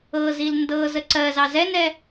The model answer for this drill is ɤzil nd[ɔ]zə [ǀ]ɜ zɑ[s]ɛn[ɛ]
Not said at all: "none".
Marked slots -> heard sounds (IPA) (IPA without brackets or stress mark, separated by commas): ɤ, ǀ, z, ɛ